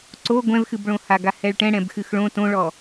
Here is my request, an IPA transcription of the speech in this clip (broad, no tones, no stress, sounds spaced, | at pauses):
ǀ o ɡʷ ɛ̃ v x ɨ b ɭ õ h a ɡ a h ɛ ɭ ʈ ɛ̃ ɽ ɛ̃ b x ɨ x ɭ õ t õ ɭ ɔ